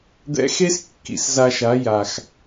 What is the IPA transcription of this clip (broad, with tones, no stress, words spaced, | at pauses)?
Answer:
d̪ɛ̰˧xe˦s kːḭ˨sza˧ʃa˨˦ ja˨x